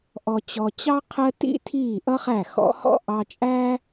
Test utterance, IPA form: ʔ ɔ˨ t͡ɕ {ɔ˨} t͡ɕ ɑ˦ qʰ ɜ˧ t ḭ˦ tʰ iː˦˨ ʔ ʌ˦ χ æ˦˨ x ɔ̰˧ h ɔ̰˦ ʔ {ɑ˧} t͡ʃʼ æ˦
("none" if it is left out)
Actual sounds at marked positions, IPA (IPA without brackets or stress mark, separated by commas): ɔ˨, ɑ˧